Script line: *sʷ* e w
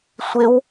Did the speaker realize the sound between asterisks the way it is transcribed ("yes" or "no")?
yes